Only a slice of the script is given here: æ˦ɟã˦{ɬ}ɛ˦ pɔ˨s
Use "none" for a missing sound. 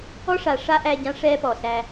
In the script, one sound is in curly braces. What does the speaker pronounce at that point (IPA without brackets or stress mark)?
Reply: ʂ